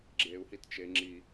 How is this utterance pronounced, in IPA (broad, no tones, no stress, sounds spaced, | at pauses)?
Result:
ɡ͡ǁ e u̯ h i t t͡ʃ e ŋ͡ǁ i